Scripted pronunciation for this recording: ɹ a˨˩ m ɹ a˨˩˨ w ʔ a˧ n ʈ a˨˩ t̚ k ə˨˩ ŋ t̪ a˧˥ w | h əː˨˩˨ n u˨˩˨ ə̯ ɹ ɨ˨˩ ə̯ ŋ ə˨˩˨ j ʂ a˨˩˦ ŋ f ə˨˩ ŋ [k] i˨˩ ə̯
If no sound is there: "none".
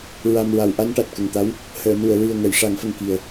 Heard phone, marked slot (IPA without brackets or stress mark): k